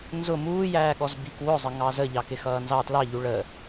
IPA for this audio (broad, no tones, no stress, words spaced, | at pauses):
nzʊ muːjæːɠɔz bikwʊzˤə ŋɑzə ʎɑkɪxʌːnzɑ tlɑʎu ɭəː